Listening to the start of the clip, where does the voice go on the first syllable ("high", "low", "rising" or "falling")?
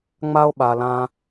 high